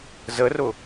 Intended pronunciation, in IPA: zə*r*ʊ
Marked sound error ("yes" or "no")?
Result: no